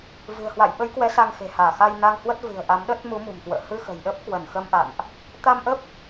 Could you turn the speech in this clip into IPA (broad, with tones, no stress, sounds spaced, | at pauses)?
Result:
v ɨ̤˨˩ ə̯ h w a̰˧˨ j ɓ ə˨˦ j k w ɛ˨˦ s a˧ ŋ x e̤˨˩ h aː˧˩ x a˧ j n a˧ ŋ h w ə˦˥ t̚ v ɨ̤˨˩ ə̯ ʔ a˨˦ m ɗ ə˦˥ t̚ m u˨˦ m ṳ˨˩ m k w ə̰ː˧˨ h ɨ˧ x ə̤˨˩ j ɗ ə˦˥ p̚ k w ə˧˩ n x ə˧ m ʔ a̰˧˨ n ʔ | t̪ a˧ m ʔ ə˦˥ p̚